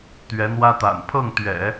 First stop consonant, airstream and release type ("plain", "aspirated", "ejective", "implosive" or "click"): plain